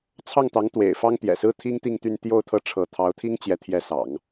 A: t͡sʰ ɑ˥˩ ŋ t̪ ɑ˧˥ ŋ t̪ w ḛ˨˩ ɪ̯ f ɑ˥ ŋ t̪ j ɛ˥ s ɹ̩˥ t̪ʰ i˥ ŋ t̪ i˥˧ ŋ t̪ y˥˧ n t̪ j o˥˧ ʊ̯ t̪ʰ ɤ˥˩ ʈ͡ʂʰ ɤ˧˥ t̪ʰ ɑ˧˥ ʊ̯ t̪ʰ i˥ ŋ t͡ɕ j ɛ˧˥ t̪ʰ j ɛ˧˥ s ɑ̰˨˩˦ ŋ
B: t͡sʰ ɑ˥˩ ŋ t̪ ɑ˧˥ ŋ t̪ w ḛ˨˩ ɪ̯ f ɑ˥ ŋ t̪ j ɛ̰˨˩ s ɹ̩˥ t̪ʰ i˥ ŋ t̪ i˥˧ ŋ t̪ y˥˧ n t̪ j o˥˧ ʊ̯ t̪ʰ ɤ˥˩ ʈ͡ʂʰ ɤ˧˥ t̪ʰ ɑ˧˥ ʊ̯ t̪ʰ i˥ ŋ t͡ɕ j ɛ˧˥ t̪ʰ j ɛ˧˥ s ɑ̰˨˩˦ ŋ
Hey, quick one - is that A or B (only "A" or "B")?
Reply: B